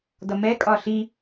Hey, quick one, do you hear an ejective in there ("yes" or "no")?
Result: yes